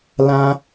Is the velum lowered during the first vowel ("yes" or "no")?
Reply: yes